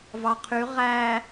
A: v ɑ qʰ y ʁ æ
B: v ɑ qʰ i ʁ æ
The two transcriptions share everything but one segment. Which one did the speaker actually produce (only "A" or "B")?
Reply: A